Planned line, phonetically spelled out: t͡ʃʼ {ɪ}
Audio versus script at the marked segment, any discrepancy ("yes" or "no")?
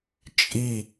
yes